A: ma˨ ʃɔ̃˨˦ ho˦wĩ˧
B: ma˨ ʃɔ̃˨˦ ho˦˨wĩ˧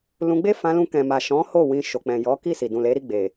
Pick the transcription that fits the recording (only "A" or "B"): B